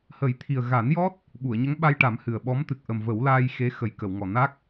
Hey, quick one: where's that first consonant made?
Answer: throat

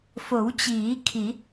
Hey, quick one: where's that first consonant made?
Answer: lips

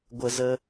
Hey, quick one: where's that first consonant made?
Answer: velum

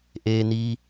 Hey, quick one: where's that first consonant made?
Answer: throat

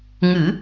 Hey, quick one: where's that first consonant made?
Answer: velum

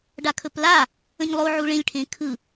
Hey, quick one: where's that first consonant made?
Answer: retroflex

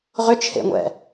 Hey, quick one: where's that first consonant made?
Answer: uvula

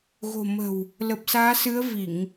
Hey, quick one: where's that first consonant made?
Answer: velum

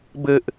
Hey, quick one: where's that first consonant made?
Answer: lips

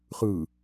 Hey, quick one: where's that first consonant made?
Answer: uvula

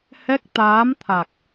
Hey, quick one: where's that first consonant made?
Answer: throat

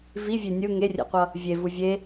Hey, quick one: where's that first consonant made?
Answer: lips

